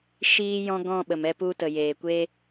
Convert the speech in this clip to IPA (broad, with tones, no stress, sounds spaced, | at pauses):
ʃ iː˦ j ɔ̃˦ ɡ ɔ̃˦˨ ɓ ə˨ m ɛ˧ p u˧ t ə˨ j eː˨ kʷ e˦